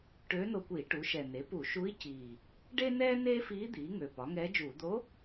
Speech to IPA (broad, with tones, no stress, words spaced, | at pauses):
ʈøː˧˥no˧kʷiː˧˩˧ ʈu˩˥ʃɛ˨˩ ne˩˥pu˧˩˧ʃu˧˥i̯ ciː˨˩ | ɖe˥nɛː˥ neː˥fiː˧˥ d̪iː˩˥ŋø˨˩ pɒ˩˥ŋɛː˧˥d͡ʒuː˧˩˧ d̪o˧˥